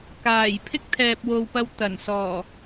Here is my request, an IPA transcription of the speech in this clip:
kaː˨˩j pʰɪ˥k̚t̪ʰɛː˨p̚wo˨wpɐ˧w t̪ɐ˨˩nsɔː˨˩

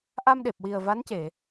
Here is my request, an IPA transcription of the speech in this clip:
ʔa˧mɗe˨˩p̚wi˨˩ə̯ va˧˥nce˨˩˨

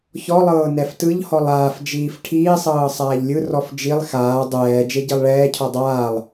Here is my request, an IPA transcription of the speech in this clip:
çɔlˠɤː nɛftɯʎhɔlˠ aːfd͡ʒiːf ʈʰiːsˤɤː sˤaːʎlʲɯrɔf d͡ʒilˠ xaː dˤɛː d͡ʒeɟilˠɭɛːcʰɔ dˤaːlˠ

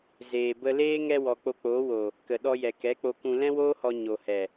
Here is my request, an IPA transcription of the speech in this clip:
zeː˨bə˧leː˦ ŋɛ˧wɔ˨ k͡po˧k͡poː˨˦wo˨ | kə˨ɗɔ˧jɛ˨ kɛ˨˦k͡po˧kũ˧ lɛ̃˦woː˦hɔ˧ ɲo˨hɛ˨

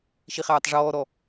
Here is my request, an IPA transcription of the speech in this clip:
ʃiχaːtˤʐɔː ɾɔ

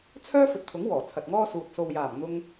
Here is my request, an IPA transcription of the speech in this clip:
t͡sʰœː˥fɵ˨t̚t̪ʰʊ˨˥ŋ wɔː˨˩t͡sʰɐ˨t̚ŋɔː˥suː˨t̚ so˨wjaː˨˩m n̪ʊ˧ŋ

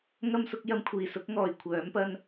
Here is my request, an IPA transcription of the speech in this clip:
ŋɐ˥msʊ˨˥k̚ jɐ˧mkʷʰiː˨˩sʊ˨˥k̚ŋɔː˨˩j kʷʰœː˨˥mpɐ˥n

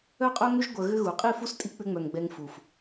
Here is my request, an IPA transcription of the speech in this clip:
œ˦qʼœ˦ ŋʏ˦ʒ ɡʷœ˧ɣʏ˦ ɣu˨qʼi˦˨fu˦s tʼi˦ k͡pʏ˧ŋ͡mœ˨ŋ ɡ͡bɛ˧ŋfu˨f

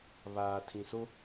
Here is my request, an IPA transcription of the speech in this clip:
βaː˨ tʰĩ˨so˦

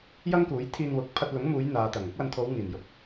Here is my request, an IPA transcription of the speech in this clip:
jɐ˥ŋkuː˨˥j t̪ʰiː˧nwʊ˨˥k̚ pʰɐ˧t̚lʊ˨˥ŋmuː˨˧j n̪aː˨t̪ɐ˨˩ŋ ʊ˥k̚wɐ˧nt̪ʰo˨˧w ŋiː˨˩njʊ˨˥k̚

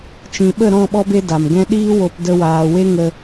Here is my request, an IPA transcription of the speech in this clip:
t͡ʃĩ˨ɓə˦˨ ɾɔ̃˦˨ɓɔ˧be˧ da˨mɡɛ̃˦ ɗiː˦wo˧p də˧waː˨we˦ ŋə˦

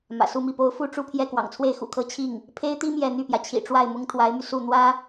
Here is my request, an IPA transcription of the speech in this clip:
mä̰˨˩su˥˧mi˥˩po˥ʊ̯ fu˥˧ʈ͡ʂu˥˧pʰjɛ˥˩ kwɑ̰˨˩ŋt͡sʰwe˥˩ɪ̯xṵ˨˩kʰɤ˥ t͡ɕʰi˥˩ŋ | pʰe˥ɪ̯t̪i˥ mjɛ˥˧ n̪y˥˩pjä˩t͡ɕʰḭ˨˩ ʈ͡ʂwa˥˩ɪ̯mʊ˥ŋt̪ʰwa˧˥ɪ̯my˧ su˥˩ n̪wä˥

